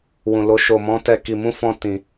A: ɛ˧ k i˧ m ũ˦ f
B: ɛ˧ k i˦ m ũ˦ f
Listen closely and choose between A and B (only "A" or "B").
A